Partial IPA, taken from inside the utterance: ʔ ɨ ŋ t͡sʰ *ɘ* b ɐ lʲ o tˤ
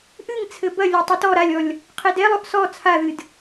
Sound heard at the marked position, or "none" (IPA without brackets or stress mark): ɘ